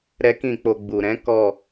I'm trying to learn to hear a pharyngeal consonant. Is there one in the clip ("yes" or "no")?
no